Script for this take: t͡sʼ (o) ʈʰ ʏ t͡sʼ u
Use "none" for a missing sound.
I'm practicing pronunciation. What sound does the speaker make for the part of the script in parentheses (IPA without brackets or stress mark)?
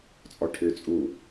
ɔ